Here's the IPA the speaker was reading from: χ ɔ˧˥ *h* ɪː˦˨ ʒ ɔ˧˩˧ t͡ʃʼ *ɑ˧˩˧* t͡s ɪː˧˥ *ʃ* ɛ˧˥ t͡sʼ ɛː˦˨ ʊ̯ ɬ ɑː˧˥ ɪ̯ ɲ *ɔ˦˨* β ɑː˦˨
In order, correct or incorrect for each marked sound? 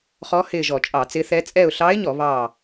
correct, correct, incorrect, incorrect

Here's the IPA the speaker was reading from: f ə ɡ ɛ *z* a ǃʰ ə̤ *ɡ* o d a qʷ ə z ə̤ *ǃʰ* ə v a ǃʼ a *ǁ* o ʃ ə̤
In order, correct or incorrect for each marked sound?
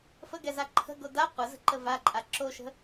correct, correct, incorrect, correct

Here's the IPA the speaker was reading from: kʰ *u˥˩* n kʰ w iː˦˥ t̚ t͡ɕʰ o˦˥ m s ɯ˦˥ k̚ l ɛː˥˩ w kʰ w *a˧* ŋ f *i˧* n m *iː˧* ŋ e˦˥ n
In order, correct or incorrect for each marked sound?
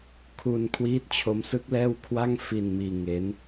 incorrect, incorrect, correct, correct

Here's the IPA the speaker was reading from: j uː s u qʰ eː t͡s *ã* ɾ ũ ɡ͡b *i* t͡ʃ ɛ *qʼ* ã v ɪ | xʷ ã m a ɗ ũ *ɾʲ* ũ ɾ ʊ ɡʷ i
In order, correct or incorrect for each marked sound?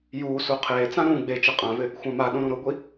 correct, incorrect, correct, incorrect

